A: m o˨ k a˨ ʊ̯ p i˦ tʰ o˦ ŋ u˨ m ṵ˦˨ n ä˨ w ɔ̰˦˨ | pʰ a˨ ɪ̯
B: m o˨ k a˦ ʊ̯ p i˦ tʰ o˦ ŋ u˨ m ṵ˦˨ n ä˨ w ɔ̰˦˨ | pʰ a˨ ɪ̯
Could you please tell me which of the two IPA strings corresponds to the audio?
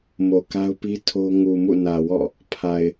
B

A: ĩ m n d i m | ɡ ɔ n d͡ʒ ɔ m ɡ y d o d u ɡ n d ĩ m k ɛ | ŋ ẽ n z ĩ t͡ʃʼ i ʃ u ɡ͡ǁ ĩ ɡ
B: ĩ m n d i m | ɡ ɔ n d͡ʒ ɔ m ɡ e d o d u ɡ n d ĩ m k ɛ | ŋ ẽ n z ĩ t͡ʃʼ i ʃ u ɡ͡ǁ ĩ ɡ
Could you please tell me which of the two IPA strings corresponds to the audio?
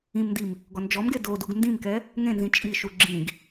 B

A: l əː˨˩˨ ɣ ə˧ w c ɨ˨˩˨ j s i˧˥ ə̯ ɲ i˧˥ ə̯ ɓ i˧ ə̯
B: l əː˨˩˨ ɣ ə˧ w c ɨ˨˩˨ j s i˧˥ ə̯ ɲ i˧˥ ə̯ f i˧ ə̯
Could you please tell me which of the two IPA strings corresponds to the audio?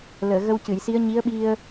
A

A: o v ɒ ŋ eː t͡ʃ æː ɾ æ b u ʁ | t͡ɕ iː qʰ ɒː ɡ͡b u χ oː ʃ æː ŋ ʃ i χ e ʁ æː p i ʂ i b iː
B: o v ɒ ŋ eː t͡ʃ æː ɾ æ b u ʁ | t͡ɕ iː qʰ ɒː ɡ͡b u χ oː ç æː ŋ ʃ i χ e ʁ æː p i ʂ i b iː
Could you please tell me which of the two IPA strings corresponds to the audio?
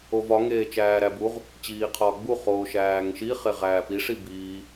A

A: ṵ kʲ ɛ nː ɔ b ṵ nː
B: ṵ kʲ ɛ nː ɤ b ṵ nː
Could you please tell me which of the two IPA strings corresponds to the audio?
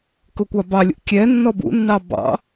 A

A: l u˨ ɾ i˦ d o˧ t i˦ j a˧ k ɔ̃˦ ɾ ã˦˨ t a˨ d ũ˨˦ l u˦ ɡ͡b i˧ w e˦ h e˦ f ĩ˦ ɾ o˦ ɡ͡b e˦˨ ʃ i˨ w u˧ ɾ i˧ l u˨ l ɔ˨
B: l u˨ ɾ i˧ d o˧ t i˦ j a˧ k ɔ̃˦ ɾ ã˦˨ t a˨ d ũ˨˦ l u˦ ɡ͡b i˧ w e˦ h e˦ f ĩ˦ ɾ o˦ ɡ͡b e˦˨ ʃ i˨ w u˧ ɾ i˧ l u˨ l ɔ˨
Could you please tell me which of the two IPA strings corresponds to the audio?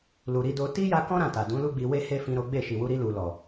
B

